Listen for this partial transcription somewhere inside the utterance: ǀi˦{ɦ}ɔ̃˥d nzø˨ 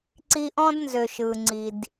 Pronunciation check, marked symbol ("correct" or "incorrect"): incorrect